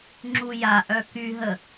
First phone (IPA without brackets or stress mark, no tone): ŋ͡ǁ